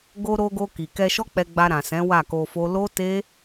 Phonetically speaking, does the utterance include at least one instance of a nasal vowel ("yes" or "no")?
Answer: yes